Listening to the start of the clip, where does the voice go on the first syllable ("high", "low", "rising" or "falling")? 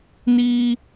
high